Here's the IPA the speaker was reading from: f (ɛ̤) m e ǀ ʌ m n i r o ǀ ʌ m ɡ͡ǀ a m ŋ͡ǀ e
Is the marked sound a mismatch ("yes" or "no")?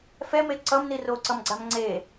yes